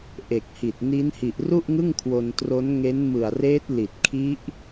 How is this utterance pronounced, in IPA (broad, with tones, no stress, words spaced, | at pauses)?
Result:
ʔe˨˩k̚hi˨˩t̚ ni˦˥nhi˨˩ʔru˥˩ʔŋɯ˥˩ŋ kʰwo˧ntro˦˥n ŋe˦˥nmɯ˨˩a̯reː˦˥t̚ li˨˩t̚kʰi˦˥ʔ